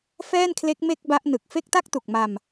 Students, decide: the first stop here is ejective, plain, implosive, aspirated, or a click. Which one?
aspirated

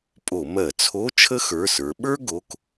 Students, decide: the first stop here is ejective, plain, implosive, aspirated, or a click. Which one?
ejective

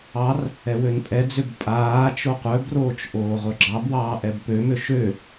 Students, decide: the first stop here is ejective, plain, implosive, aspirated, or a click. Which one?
ejective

